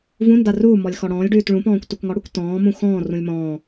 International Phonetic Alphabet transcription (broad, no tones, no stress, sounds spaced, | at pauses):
v ũ n d a r u m ɔ lʲ x ɔ ɽ ɔ̃ː lʲ ɖ ʉː t ɭ ũ p ɔ̃ː kʷ t u k ŋ ɔ ɽ u kʷ t ɔ̃ː m ũ x ɔ̃ː r ũ lʲ m ɔ̃ː